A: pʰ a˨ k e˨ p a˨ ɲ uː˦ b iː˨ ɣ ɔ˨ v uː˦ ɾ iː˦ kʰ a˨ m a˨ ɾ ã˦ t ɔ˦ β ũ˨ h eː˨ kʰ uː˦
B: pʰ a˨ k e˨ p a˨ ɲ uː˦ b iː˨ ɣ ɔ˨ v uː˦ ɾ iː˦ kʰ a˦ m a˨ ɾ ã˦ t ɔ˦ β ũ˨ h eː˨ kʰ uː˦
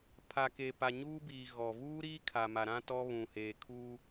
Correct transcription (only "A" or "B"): A